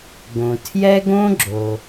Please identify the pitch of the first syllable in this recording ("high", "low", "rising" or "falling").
low